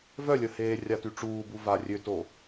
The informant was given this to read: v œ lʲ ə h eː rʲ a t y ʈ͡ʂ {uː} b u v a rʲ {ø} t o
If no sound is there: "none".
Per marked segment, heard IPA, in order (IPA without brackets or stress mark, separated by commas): uː, ø